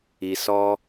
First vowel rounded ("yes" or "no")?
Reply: no